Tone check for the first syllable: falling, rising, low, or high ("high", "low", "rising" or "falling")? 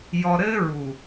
low